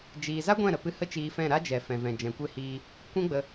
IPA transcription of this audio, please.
d͡ʒ iː˧ z a˦ ɡʷ ɛ̃˦˨ ɾ ə˨ p ɨ˧ h ə˦ t͡ʃ iː˧ f ɛ̃˦˨ ɾ a˦ d͡ʒ ɛ˨ f ɛ̃˨ v ɛ̃˨ d͡ʒ ɛ̃˨ kʷ e˦˨ h iː˧ | kʷ ɛ̃˦ ɡ͡b ə˧

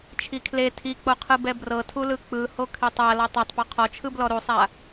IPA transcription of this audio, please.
t͡ʃʰ i kʰ l e tʰ i k͡p o qʰ ɯ b ɛ b r ɤ tʰ u l ɯ k͡p ɯ h o kʰ e tˤ a l ɔ tˤ a tˤ p ɔ qʰ ɔ t͡ʃʰ ɯ b l ɔ ɾ u sˤ a

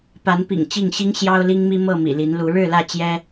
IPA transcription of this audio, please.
p a˨˦ n p ḭ˨˩ ŋ t͡ɕ i˥˨ ŋ ɕ i˦ ŋ ɕ j ɑ˦ ʊ̯ l i˦ ŋ m i˦ m ɤ˥˨ m ḭ˨˩ l i˨˦ n l u˨˦ ɻ ɻ̩˥˨ l ä˥˨ t͡ɕ j ɛ˦

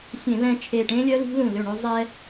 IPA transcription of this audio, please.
sʲ ẽ˧˩˧ β ɛ̃˧ t͡ʃʰ e˧˩ ʈ ẽ˦˥ lʲ œ˦˥ l i̤˦˥ l ũ˧˩ l ø˧˩ ɳ ø˧ zˤ ɛ˧

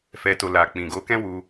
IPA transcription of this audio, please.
f ɛ˨ t o˨ l a˨ k͡p ĩ˨ ɡ o˨˦ k ɛ̃˦ w u˧

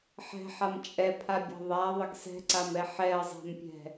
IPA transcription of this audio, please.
ħ ɛ̤ ħ a m t͡ʃʼ ɛ pʰ a bʲ a̤ ðˤ a ðˤ ɪ ɡ s ɛ̤ ǀ a m ɛ ħ ɛ ɐ̯ zˤ a̤ m pʲ ɛ̤

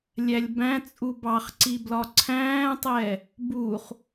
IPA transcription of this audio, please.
lʲ æ lʲ b æ̃ t͡sʼ u b ɑ χ ǀ i b l ɒ ǀʰ æ̃ː tˤ ɛ | b u χ

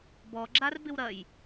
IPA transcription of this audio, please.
b ɔ ɡ͡ǁ a r b ɪ w ɾ ɐ j

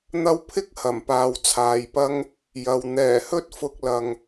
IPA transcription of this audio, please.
n̪ ɐ˧ w pʰ ɪ˥ k̚ h ɐ˨˩ m p aː˨ w t͡sʰ aː˨ j p ɐ˥ ŋ | j ɐ˨ w n̪ ɛː˨˩ h ɵ˥ t̚ f ʊ˧ k̚ l ɐ˨ ŋ

